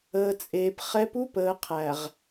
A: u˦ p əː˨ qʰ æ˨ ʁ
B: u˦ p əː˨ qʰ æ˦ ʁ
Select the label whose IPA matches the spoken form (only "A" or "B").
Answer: A